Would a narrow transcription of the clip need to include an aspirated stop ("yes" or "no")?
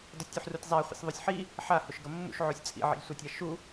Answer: no